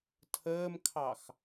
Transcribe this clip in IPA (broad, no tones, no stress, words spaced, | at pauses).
tʰəːmkʰɑx